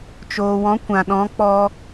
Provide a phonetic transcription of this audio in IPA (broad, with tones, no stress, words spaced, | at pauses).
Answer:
t͡ʃoː˨wɔ̃˨˦ kʷã˨ɗɔ̃˨˦ k͡pɔ˧